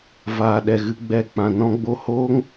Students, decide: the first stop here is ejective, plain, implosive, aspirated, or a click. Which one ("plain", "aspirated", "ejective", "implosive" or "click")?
implosive